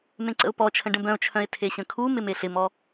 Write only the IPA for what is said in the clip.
m ẽ ǀ ə̰ ʊ̯ p ɔ t͡ʃʰ ə̃ ɖ ə̃ b œ̃ ʊ̯ t͡ʃʰ œ̃ ɪ̯ tʰ e ɕ ə̃ kʰ u m ɪ m e ɬ ɪ m ɔ

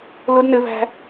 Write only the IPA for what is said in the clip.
l ʊ d n ɘ v æ̤

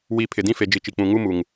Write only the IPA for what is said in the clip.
w i˨˦ pʰ ɪ˨ d ĩ˦ f e˨ d͡ʒ i˨ t͡ʃ i˨ k͡p ũ˨ ŋ u˦ m u˨ ŋ

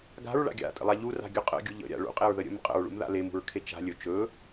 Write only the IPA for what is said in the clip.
ɡ a̤ ɹ ɭ a̰ ɡʲ a̰ tʼ ə̰ lˠ a ʎ u r a̤ ɡʲ ɵ qʼ ə̰ ɡʲ u ʎ ə̰ ɾʲ a̰ ɭ ṵ qʼ e ɹ ð ə ɾʲ ə̰ m qʼ ə̰ ɹ ɭ ṵ m ð a̰ l e m ṳ ɹ kʰ e t͡ʃ a̤ lʲ ɵ t͡ʃ ɵ

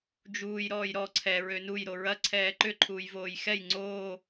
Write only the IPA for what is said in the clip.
d͡ʒ uː j ɾ ɔː j ɾ ɔ ǀʰ ɛ ɹ ø n u j ɾ o ɹ ɐ ǀʰ ɛː ǃ ʏ ǃʰ uː j v oː j x ɛ j ŋ͡ǀ oː

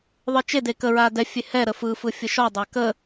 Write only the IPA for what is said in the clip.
ðˤ ɯ t͡ʃ e d e k ə ɹ a d ɛ fʲ e h ɛ ɾ ə f ɯ f ɯ fʲ ə ʃ ɔ dˤ a k ə

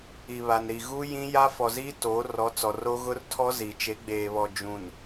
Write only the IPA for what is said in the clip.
i˨ β a˨ n ɾ i˨ ɣ u˦ j ĩ˦ j a˦ f ɔ˨ z i˦ t oː˨˦ r ɔ˨˦ t͡s ɔ˨ r o˦ ɣ ʊ˦ r tʰ ɔ˦ z i˨ t͡ʃ e˨˦ ɡ͡b eː˨ β ɔ˨ d͡ʒ ũ˨ n

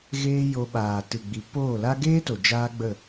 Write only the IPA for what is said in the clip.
ɣ eː˦ j o˧ ɓ aː˨ t ɨ˨ ɡ͡b i˨ p oː˦˨ l a˦ ɡ eː˦ t o˨ d͡ʒ aː˦ ɡ͡b ə˦˨

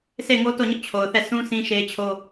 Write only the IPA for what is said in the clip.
s e˦˨ ɪ̯ ŋ o˦ t o˦˨ ɲ ʊ˦ ʔ t͡ɕʰ o˨ ʊ̯ θ ɛ˦˨ s ũ˦ s ĩ˦ ʃ e˦ ɪ̯ t͡ɕʰ o˦

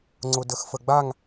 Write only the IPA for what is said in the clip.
ŋ͡ǀ ʊ d ə x f ə ɡ͡b a ŋ

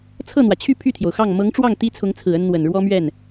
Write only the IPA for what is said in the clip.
t͡sʰ ɤ˥˩ n̪ w ä˩ t͡ɕʰ y˥˧ pʰ y˥˩ t̪ʰ j o˩ ʊ̯ x ɑ˥˩ ŋ m ɤ˧˥ ŋ ʈ͡ʂ w ɑ˥˩ ŋ t̪ i˥ t͡sʰ ʊ˧˥ ŋ t͡sʰ ɹ̩˨˩ ə˥ n n̪ w ə˨˩ n ɻ w ɔ˥ m ɥ ɛ˥˩ n

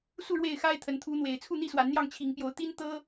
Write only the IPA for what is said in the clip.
s u˥˨ ɻ w e˥˨ ɪ̯ x a˦ ɪ̯ t̪ʰ ə˨˦ n t̪ʰ u˨˦ n̪ w e˨˩ ɪ̯ t͡sʰ u˥˨ n̪ i˥˨ s w a˨˦ n n̪ j ɑ˥˨ ŋ t͡ɕʰ i˨˦ ŋ p j o˨˦ ʊ̯ t̪ i˦ n t̪ ɤ˦

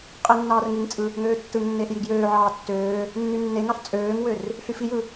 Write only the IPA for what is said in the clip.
qʼ e nː ɑː r ŋ i ŋ t͡sʼ ɯ | ŋ øː tː ɯ ŋ nː eː ɬ j i ɡ j øː ʕ ɑː tː øː | nː y nː e ŋ ɑ ɬ t͡sʼ øː ŋ w ø r | ɬ y f i j ɯ

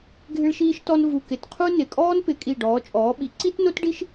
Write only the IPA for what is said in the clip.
ɡʱ ɪ˥ ɭ ʃ iː˥ ʃ t ɔ˥ n v u˧˩ k ɪ˧˩ t qʰ u˥ n ɪ˧˩ kʼ ɔː˥ n p ɪ˨˥ kʼ i˧˩ ɖ ɔː˨˥ t͡ʃʼ ɔː˨˥ ɓ i˨˥ ǀ i˥ t n o˥ t ɖ i˥ ʃ

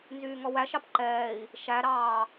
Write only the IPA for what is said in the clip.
n z yː ŋ ɔ w æ ʃ ɑ p ǃ ɛː i̯ | ʃ æ ɾ ɑː

